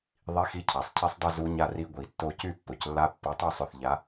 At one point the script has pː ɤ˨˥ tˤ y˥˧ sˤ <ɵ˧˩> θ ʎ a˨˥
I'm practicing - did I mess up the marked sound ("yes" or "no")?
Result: no